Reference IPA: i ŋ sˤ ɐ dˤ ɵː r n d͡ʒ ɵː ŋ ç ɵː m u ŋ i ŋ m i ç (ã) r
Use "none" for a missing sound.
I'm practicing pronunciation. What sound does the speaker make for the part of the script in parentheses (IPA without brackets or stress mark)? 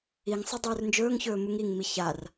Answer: a